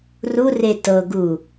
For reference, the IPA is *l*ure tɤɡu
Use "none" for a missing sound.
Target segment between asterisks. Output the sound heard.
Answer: r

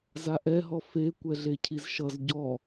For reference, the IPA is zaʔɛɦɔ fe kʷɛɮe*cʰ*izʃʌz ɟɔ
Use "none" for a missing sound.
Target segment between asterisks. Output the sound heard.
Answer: cʰ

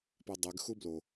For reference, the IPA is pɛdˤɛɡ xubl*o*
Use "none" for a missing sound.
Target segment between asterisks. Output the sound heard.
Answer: o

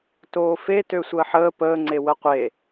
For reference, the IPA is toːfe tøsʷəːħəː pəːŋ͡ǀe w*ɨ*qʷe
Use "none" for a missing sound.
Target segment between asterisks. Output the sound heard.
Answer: ə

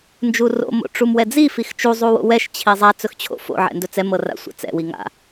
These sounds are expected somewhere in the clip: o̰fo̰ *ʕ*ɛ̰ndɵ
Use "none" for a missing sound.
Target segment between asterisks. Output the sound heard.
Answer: ʕ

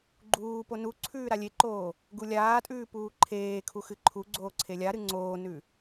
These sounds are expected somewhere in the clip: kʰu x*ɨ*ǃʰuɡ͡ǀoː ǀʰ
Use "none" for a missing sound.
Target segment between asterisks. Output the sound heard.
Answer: ɨ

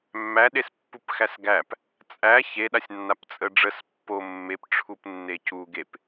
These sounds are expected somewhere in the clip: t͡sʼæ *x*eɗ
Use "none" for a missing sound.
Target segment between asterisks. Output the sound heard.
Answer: ç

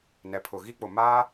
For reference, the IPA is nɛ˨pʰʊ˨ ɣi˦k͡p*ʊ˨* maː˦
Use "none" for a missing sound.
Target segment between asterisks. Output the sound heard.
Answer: ʊ˨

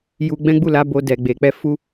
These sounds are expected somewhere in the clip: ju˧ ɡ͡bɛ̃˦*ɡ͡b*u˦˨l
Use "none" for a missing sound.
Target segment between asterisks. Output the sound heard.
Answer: ɡ͡b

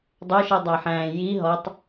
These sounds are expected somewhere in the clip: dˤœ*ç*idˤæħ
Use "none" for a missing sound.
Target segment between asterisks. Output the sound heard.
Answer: ʃ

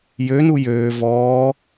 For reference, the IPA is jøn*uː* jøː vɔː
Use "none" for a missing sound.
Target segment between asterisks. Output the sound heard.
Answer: u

